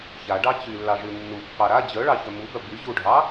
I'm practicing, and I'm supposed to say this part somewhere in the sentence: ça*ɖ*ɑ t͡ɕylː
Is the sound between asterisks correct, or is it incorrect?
correct